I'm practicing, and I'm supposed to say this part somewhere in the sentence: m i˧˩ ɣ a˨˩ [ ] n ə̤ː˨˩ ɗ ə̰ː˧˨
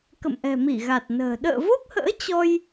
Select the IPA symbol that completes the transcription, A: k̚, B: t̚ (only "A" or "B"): B